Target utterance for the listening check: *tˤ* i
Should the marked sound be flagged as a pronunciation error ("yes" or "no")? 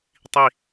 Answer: no